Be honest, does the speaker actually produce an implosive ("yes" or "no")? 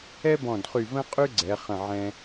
no